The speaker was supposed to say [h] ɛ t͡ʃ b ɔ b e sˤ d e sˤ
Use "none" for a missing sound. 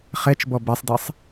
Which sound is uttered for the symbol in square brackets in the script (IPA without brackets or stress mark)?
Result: χ